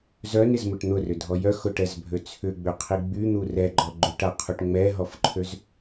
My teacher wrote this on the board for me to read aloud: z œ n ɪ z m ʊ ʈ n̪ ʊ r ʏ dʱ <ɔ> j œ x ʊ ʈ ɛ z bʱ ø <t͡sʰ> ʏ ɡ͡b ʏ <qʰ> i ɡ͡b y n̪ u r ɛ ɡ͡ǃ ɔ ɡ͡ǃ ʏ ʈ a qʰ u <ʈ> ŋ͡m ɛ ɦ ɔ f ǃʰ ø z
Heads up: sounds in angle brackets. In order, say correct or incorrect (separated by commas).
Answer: correct, correct, correct, correct